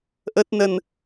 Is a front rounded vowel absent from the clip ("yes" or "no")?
yes